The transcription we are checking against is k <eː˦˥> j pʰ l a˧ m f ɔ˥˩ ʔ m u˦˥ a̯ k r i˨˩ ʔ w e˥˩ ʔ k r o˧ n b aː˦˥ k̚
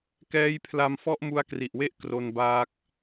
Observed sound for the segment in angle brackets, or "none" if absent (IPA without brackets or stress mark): ɛː˦˥